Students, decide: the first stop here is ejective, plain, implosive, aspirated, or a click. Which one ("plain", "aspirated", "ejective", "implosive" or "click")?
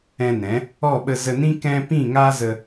implosive